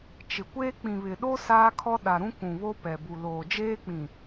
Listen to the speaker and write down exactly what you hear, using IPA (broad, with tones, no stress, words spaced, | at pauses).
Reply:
t͡ʃɪ˨kʷeː˦ k͡pĩ˨βɪ˨ɗo˦ saː˦kʰɔ˦ɗa˨ɾũ˦ kũ˨βo˦pɛ˨bu˨ loː˨d͡ʒeː˦k͡pĩ˨